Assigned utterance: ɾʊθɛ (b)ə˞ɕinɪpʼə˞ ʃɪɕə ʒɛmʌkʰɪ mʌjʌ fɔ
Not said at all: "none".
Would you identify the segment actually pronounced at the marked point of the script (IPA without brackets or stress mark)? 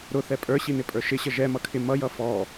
pʼ